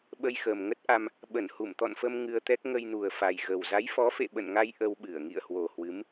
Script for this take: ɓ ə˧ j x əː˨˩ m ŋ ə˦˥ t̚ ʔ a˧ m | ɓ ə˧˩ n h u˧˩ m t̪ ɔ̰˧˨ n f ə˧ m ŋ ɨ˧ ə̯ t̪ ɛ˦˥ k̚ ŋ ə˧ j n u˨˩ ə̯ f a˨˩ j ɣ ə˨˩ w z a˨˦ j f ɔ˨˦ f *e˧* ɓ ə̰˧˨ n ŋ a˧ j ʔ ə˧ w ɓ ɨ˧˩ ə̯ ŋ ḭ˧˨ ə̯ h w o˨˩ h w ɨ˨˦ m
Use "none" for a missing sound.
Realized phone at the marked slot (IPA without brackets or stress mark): ḛ˧˨